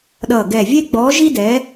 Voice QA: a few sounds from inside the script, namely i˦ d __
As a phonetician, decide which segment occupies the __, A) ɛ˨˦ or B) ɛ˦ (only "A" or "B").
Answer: A